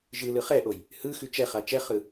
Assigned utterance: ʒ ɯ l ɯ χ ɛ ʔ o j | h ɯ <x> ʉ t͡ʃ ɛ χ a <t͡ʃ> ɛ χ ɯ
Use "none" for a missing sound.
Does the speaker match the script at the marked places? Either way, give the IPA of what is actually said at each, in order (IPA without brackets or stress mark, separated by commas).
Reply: x, t͡ʃ